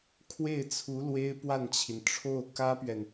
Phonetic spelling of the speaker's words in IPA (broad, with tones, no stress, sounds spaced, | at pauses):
kʰ w e˥˩ ɪ̯ t͡sʰ u˧˥ l w e˥ ɪ̯ p w a˥˩ n t͡ɕʰ i˩ n ʈ͡ʂʰ o˥˩ ʊ̯ k ä˥ p ɥ ɛ˨ n